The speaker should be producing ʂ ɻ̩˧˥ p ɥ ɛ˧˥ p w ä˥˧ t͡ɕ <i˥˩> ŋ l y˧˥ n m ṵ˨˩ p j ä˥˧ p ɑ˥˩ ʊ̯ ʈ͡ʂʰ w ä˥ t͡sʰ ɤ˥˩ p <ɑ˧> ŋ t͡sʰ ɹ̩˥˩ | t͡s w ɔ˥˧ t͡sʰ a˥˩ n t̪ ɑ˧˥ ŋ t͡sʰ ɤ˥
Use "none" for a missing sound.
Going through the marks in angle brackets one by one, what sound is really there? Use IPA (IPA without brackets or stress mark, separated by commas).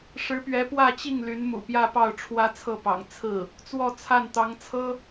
i˥˩, ɑ̰˨˩